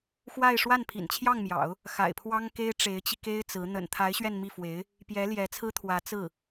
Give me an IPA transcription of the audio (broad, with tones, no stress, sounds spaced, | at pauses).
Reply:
x w a˥˧ ɪ̯ ʂ w a˥˩ n pʰ ḭ˨˩ n t͡ɕʰ j ɑ˥˩ ŋ m j ɑ̰˨˩˦ ʊ̯ | x a̰˨˩ ɪ̯ pʰ w ɑ˥ ŋ k e˥ ɪ̯ ʈ͡ʂ e˧˥ ɪ̯ t͡ɕ i˧ k e˥ ɪ̯ t͡s ɹ̩˧˥ n̪ ə̰˨˩ n t̪ʰ a˧˥ ɪ̯ ɕ ɥ ɛ˥˧ n m i˥˩ f w e˧˥ ɪ̯ | p j ɛ˧˥ l j ɛ˧˥ t͡sʰ ɹ̩˥ t̪ʰ w ä˧˥ t͡s ɹ̩˥˩